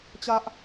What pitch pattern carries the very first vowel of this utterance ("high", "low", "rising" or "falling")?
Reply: high